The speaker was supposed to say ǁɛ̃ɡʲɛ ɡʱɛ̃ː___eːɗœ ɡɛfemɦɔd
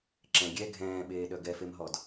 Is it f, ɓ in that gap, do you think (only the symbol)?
ɓ